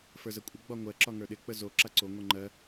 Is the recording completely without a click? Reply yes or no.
no